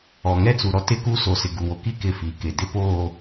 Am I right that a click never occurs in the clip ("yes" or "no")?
yes